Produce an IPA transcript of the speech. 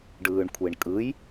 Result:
ɖɯːɳkʷʰeɳkʼɯj

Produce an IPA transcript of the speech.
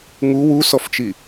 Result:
ŋu wusɔft͡ʃi

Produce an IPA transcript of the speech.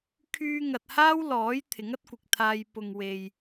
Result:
kʰyː˧ŋɐ˨t̚haː˥w lɔː˨˥j t̪ʰɪ˨˥ŋɐ˥t̚kʷɪ˨k̚t̪ʰaː˧j pʊ˨ŋ we˨j

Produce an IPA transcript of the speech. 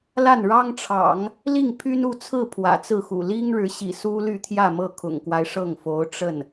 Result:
la˥˩nɻɑ˥ŋʈ͡ʂʰɑ̰˨˩˦ŋ | li˥˩ŋpʰy˥nu˥˧t͡sʰɹ̩˥˩ pʰwä̰˨˩t͡sɹ̩˥˩xṵ˨˩ li˥ŋɻɻ̩˧˥ɕḭ˨˩ su˥ly˥˧t̪ʰjä˥˧mɤ˥˩ kʰʊ̰˨˩ŋkwa˦ɪ̯ʂɤ˥˩ŋfo˧˥ʊ̯ ʈ͡ʂə˥˩n

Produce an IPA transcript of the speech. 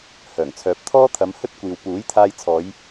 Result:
hœː˨˩ŋt͡sʰœː˨˥p̚ t̪ʰɔː˥ t̪ʰɐ˨˧mhɵ˥t̚kʷiː˨w puː˨˥jt̪ʰaː˧jt͡sʰɔː˨˧j

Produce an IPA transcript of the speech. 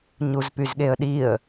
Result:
ɲuzpyzɠeə̯ɗiə̯

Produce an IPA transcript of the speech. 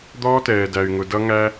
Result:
d̪ɔː˦tɛː˨dæ˨y̯ ŋʊ˨dʌ˧ ŋæ˧

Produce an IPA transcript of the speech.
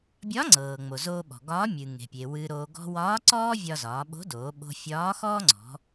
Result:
bʲɒ˧˥ŋ͡ǀɤː˩ŋ͡mo˩ zoː˧ɓɔ̤˩ɡɒː˧˥ mʲɨ˩ŋe̤˩pʲe˩ wɨ˧ɾoː˧ ɡɔ̤˧wɒː˧˥ǀɔː˥ vʲɒ˧zɒː˩˧ɓo̤˧˥ doː˩˧ɓo̤˧ fʲɒː˧˥xɔː˥ŋ͡ǀɔ̤˩˧

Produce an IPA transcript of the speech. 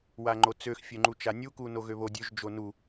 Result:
waŋ͡ǃot͡søx fʲøŋ͡ǃut͡ʃanʲu kunoɣøβo dʲøʒ d͡ʒonu

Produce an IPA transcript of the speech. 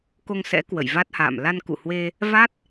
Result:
ko˧ŋsɛ̰˧˥ kwə̰˧˨jva˦˥t̚ha̰ː˧˨m la˧nkṵ˧˨hwe˧ | va˦˥t̚

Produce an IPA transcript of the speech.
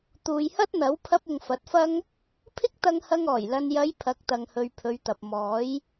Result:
t̪uː˨jhɐ˥t̚n̪ɐ˨˥w pʰɐ˧p̚ʊ˨ŋ fɐ˨˥t̚fɐ˥ŋ | pʰɪ˥k̚t̪ɐ˧ŋhɐ˧ŋɔː˨˩j lɐ˨njɐ˨˧j pʰɐ˨˥k̚t̪ɐ˨ŋhɵ˨ɥ pʰɵ˨˧ɥt̪ɐ˨p̚ mɔː˨˥j

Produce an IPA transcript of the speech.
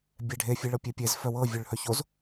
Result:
bʲɛɖʱe fʲeɭɤpʲepʲez fœwɤ vʲœɭhœçoz

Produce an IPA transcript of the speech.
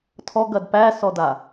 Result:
tʰɔɡɐd pæsɔda

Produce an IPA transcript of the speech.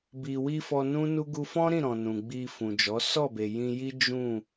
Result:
bi˨wi˧ fɔ˧nũ˦nu˦ ɡu˧fɔ̃˦ɾĩ˦˨ ɾɔ̃˨ nũ˨ɡ͡bi˧ fũ˨d͡ʒɔ˨˦ sɔ˦˨be˨jĩ˧ji˦ d͡ʒũ˦˨

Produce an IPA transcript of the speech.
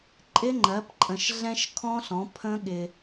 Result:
ǃʼɪ˦˥ŋ͡ǃɜ˨˥pǃʼə̃˧ʃ ɮɛ̃˦˥ʃkʰɔ̃˦˥ɬɔ̃˨˥ pʰə̃˦˥ɠɪ˧

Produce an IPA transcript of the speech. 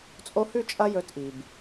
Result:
t͡sʼo˧hʉ˦˨t͡ʃʼɐ˧ jɵ˧tʔi˨b

